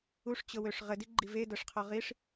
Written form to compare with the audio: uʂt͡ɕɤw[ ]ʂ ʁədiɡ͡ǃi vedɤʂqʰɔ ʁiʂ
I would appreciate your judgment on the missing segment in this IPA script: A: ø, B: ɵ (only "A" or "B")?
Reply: A